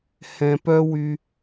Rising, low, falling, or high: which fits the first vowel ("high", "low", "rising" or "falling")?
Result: low